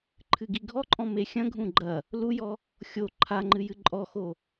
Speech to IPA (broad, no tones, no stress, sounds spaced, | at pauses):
ǃʰ ɨ ɡ i ɡʱ ɔ ǃʼ ɔ̃ m e xʲ ɐ̃ ɡʱ ũ ɡ͡ǃ ɐ | l u j ɔ | xʲ o ǃʰ a ŋ͡ǃ ɨ j ɨ ǃʼ ɔ x o